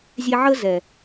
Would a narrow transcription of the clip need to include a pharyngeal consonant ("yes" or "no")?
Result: yes